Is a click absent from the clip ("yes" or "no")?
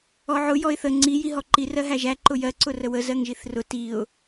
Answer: no